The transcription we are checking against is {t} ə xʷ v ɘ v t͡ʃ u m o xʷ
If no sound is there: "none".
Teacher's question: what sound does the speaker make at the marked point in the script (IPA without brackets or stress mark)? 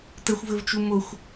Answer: t